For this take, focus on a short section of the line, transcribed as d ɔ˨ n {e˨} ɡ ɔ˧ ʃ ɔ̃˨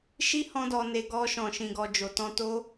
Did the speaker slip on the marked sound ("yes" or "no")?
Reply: no